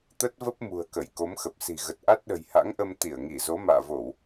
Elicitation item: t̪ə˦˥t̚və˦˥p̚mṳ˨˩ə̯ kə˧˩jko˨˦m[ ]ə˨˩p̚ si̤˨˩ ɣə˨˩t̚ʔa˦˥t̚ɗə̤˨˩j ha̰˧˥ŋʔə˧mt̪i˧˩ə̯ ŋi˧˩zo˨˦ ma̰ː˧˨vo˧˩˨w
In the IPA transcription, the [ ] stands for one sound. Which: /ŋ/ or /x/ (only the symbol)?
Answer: x